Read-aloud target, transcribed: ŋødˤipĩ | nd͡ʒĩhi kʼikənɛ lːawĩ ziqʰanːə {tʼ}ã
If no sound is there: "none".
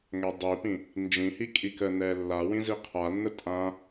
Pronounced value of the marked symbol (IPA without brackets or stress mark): tʼ